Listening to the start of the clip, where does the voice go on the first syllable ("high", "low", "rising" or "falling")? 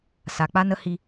low